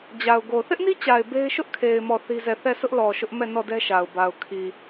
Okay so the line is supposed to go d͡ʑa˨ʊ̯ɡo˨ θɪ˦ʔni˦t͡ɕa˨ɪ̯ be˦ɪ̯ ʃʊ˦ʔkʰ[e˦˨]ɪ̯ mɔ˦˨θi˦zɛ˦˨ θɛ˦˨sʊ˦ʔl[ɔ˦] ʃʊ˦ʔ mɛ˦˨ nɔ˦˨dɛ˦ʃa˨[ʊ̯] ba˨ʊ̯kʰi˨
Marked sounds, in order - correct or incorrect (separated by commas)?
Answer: incorrect, incorrect, correct